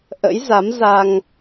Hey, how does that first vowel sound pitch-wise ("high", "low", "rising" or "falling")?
rising